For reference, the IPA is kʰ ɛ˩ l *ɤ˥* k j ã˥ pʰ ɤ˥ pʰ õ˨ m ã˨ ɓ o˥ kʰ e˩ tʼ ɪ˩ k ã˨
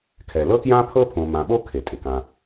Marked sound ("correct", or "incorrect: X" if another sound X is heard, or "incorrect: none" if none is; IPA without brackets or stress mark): correct